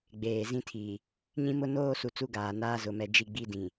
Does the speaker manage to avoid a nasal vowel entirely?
no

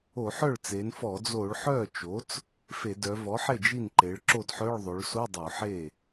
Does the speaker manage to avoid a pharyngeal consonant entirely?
no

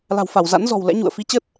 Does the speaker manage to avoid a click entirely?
yes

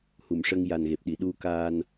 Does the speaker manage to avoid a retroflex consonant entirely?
no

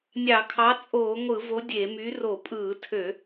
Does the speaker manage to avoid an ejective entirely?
no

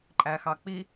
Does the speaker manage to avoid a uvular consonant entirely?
yes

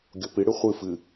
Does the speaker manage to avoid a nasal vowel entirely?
yes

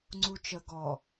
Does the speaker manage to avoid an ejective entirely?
yes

